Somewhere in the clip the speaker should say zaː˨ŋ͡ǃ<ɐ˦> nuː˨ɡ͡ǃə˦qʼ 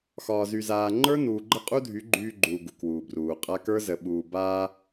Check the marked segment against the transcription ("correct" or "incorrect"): incorrect